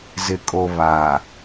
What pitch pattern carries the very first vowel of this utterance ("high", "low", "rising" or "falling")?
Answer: low